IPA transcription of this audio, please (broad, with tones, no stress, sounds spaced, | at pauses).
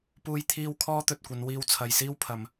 p uː˧ j t̪ʰ iː˧ w kʰ ɔː˥ t̪ ɵ˨ t̚ kʷ ɐ˨˧ n w iː˧ w t͡sʰ ɐ˨ j s iː˥ w pʰ ɐ˨ m